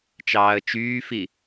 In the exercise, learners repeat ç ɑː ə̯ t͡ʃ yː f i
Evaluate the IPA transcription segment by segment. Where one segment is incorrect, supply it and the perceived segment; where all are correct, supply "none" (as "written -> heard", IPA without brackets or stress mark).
ç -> t͡ʃ